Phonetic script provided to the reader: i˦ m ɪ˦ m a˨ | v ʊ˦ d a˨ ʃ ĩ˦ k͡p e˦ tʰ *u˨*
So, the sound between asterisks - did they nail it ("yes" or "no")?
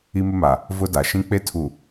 yes